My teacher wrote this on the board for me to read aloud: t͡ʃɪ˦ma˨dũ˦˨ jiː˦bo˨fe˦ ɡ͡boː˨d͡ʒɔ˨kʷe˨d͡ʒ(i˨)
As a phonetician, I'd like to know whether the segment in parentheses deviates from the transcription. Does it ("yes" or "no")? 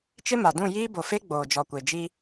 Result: yes